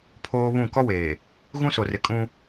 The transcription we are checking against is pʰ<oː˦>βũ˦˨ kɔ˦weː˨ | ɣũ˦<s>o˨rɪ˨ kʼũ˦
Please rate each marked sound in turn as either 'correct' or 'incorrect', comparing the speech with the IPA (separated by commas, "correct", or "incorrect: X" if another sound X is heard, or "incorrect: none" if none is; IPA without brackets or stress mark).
correct, correct